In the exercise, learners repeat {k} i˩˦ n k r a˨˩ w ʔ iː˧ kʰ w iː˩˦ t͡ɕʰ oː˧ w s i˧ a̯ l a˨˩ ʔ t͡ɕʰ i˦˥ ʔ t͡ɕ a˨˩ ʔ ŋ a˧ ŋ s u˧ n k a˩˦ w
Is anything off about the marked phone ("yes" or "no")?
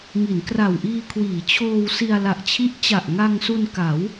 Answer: yes